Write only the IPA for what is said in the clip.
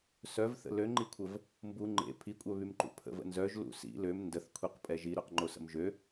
s œ v θ ə̰ l ø ŋ͡ǃ i kʷʰ ə v | m b u ŋ͡ǃ ḛ pʰ i kʷʼ œ β y m ǃ ṵ pʰ ə̰ v ə̰ n z œ ʒ l ṵ s ḭ l ø m n d ə θ kʷʰ i q pʼ ɛ ʒ i ɾ o q ŋ͡ǃ o s ə̰ m ʒ ø

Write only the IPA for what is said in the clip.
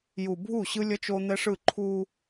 j u˨ bʱ u˦˨ ɕ ɯ˦ lʲ ʌ˦ t͡ʃ o˦ n̪ ɛ˦ ʂ ɯ˦˨ ǃʰ u˦

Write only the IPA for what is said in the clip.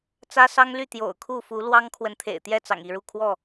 t͡s ä˦ s ɑ˦ ŋ l y˥˨ t̪ j o̰˨˩ ʊ̯ kʰ u˥˨ f u˨˦ l w ɑ˦ ŋ kʰ w ə˨ n t̪ʰ ḛ˨˩ ɪ̯ t̪ j ɛ˥˨ t͡s ɑ̰˨˩ ŋ i˥˨ ɻ u˥˨ kʰ w ɔ˥˨

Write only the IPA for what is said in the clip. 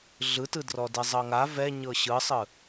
ɮ ɯ t ɯ d r ɔ d i zˤ ɤ ŋ a v ɛ ɲ ɤ ɕ ɯ sˤ ɯ

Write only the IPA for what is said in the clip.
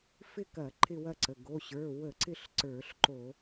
f ɪ˥˧ k ɐ˧˩˧ ǃʰ ɪ˥˧ w ɐ˥˧ ǀ ə˩˧˩ ɡ o˩˧˩ ɕ ə˞˩˧˩ w ə˧˩˧ ǀ ɪ˥˧ ɬ ǀ ə˞˧˩˧ ɬ ǃ o˧˩˧

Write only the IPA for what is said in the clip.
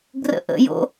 ɡ r ə̰ ʔ ə̰ j o̰

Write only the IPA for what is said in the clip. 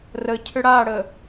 r ə cʰ ʏ ɽ a ɽ ə

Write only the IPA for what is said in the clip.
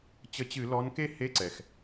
t͡ɕ ə˨˦ t͡ɕ ɨ˧˩˧ l ɔ˨˦ n k e˥˨ h e˧˥˧ ǀ ɛ˩ x

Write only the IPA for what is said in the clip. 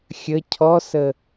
xʲ ə cʰ ɔ s ə

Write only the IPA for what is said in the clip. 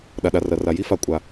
ɗ a˨ ɗ a˨ r ɐ˨ r a˨ j i˦ f a˨ kʷʼ a˨

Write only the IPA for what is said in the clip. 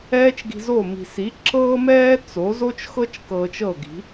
ɛː˥ t͡ʃ ɡ i̤˧ z o˥˩ m i̤˩ s i˩˥ ǁ ɤː˥ m ɛː˥ t͡s o˩˥ z o˥ t͡ʃ x ɤ˥ t͡ʃ k ɤː˧ t͡ʃ ɤ˥˩ ɡ i̤˩˥

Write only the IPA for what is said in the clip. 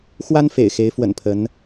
x w a˦ n f ḛ˨˩ ɪ̯ x e˨˦ ɪ̯ f w ə̰˨˩ n pʰ ə˨˦ n

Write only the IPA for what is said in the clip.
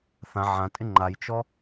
θ ã ʕ ã tʼ ɪ ŋ͡ǃ a j t͡ʃ ɔ

